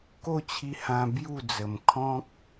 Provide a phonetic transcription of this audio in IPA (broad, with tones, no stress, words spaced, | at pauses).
ko˥˧t͡ɕʰi˧hã˧ bju˥˧d͡zə˨˩mkʰɔ̃˦k̚